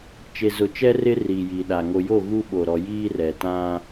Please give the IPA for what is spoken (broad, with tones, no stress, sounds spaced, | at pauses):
t͡ʃ e˨ z ʊ˨ t͡ʃ ɛ˦ r ɪ˦ r iː˨ j iː˨ ɗ a˨ ŋ o˨ j o˦˨ ɣ u˦ ɓ o˨ ɾ ɔ˨ j iː˦ r ɛ˨ t ã˦